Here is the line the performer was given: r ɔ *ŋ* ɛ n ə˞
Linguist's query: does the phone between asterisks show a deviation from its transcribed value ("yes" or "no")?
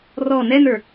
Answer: yes